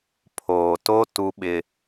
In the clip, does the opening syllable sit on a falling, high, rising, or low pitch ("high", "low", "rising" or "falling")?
low